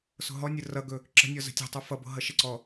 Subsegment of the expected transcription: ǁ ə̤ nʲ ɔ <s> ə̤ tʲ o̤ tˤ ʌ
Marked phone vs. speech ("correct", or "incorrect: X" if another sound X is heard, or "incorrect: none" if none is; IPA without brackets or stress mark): incorrect: z